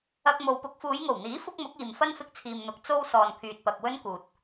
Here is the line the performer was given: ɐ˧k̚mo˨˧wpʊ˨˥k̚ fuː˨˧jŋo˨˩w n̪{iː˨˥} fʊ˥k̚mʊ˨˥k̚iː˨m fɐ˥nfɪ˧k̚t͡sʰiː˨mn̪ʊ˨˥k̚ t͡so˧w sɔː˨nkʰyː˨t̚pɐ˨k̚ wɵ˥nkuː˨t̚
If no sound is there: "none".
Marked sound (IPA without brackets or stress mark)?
iː˨˥